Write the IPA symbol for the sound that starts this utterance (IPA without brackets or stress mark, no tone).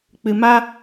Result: k͡p